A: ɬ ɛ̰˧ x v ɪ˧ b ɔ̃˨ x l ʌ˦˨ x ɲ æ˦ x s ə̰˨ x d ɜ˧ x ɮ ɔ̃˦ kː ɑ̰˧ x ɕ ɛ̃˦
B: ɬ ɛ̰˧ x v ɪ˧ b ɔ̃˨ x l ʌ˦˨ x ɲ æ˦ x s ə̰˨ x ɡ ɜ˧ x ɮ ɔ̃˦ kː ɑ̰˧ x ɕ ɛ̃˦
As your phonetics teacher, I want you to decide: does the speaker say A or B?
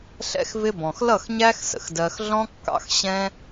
A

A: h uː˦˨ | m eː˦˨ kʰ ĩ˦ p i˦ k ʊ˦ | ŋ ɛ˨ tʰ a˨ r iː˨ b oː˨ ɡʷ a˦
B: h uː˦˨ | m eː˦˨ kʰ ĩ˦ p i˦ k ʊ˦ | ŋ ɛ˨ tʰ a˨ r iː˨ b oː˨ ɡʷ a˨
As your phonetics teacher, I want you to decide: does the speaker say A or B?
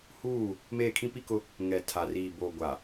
B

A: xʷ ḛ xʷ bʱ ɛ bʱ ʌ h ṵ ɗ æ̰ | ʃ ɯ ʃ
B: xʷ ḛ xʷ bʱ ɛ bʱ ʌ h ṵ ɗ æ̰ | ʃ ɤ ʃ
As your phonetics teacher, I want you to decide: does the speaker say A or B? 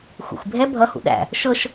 B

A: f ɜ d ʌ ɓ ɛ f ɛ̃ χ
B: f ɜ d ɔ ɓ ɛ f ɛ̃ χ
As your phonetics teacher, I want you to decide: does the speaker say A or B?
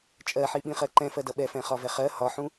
A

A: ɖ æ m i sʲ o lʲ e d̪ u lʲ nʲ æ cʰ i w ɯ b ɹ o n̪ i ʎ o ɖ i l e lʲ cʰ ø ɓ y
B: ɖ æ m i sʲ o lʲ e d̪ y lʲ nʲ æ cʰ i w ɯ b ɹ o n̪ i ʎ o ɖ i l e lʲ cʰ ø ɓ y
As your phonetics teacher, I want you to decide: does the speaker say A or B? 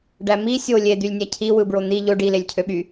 B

